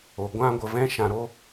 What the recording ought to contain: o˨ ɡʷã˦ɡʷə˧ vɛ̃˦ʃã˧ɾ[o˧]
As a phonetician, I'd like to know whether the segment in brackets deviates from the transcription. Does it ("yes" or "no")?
yes